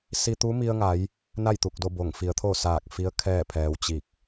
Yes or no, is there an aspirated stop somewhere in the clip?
yes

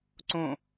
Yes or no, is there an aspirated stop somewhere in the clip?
no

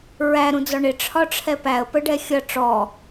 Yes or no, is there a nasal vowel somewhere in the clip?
yes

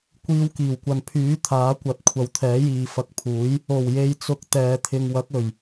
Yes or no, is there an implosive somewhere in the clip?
no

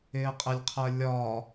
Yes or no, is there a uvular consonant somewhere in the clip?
yes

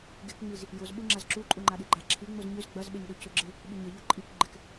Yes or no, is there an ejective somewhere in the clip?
yes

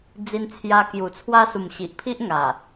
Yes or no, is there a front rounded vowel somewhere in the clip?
no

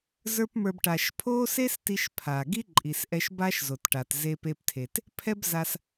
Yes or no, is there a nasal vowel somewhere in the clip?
no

